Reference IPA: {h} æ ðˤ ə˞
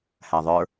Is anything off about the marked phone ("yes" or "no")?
no